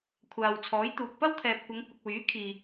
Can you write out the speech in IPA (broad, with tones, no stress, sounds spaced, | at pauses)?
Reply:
kʷʰ aː˨ w t͡sʰ ɔː˨˥ j t̪ uː˨ k̚ p ɐ˥ w t̪ʰ ɛː˨ p̚ kʷ ɐ˨˧ ŋ kʷ ɪ˨ k̚ w yː˨˥ kʰ iː˨